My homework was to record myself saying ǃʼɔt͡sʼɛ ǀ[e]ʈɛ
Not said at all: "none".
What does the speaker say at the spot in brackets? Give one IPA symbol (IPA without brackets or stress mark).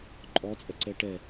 ɛ